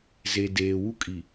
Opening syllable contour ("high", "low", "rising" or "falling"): low